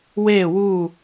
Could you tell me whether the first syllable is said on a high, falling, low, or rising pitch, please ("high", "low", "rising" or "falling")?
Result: falling